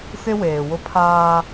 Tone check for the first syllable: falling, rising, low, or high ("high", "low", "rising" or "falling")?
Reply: high